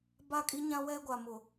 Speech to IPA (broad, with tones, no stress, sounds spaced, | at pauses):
b a˦˨ kʼ i˦ ɲ ã˦ w ɛ˦ ɡʷ a˨ m ʊ˨